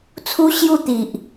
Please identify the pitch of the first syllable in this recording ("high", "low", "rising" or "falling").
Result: high